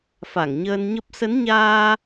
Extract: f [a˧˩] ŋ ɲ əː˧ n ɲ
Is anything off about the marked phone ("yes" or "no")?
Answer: no